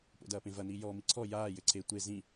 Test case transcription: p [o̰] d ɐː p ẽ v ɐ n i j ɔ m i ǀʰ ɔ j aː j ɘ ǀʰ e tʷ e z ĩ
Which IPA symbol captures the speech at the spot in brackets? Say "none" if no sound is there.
o̰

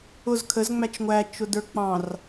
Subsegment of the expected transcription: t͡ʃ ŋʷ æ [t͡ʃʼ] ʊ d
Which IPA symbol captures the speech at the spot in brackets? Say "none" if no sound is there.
t͡ʃ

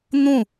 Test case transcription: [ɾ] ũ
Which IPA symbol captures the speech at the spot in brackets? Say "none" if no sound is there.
n̪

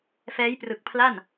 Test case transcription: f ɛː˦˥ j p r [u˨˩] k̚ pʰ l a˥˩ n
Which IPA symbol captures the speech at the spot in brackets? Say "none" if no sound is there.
ɯ˨˩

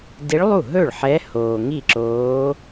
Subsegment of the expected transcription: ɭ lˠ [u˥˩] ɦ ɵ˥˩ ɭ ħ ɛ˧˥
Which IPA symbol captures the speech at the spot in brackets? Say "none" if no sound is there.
u˥˩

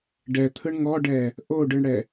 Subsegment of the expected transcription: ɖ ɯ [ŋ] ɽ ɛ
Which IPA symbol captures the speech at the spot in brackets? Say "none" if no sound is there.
ɳ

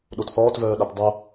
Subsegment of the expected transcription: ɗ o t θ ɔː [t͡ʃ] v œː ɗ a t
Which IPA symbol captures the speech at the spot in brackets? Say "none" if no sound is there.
t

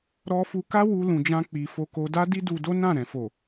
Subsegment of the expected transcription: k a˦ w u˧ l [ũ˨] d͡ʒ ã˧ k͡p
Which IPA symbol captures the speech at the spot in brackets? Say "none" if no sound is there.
ũ˨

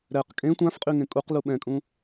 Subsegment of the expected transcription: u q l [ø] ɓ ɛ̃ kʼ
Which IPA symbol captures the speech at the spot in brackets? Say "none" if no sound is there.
u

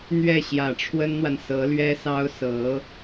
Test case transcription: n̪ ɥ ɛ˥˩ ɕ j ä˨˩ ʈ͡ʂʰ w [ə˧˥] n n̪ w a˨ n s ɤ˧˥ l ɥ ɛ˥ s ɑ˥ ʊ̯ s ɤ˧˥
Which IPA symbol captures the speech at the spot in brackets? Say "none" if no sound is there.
ə˥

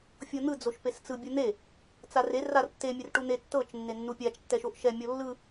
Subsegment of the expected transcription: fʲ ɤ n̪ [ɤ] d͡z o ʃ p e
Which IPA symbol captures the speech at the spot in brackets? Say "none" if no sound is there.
ɯ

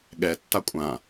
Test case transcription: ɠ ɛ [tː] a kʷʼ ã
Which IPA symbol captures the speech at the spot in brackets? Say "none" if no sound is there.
tː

